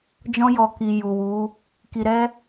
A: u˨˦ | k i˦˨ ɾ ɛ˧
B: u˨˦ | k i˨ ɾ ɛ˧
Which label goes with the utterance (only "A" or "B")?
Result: B